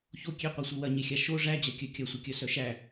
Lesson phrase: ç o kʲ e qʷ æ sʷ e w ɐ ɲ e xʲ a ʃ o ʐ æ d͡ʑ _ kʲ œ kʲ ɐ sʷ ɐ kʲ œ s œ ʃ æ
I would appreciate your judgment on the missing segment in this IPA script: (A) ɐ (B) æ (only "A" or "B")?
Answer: A